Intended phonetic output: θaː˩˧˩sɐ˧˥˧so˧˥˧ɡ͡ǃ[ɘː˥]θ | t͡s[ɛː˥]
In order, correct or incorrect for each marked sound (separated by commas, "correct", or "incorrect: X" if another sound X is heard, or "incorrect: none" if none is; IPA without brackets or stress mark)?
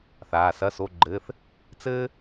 incorrect: ɘː˧˥˧, incorrect: ɘː˥